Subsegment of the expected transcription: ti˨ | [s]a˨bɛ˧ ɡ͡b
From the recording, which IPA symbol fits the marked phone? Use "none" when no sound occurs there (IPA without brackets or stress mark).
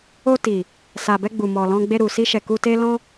s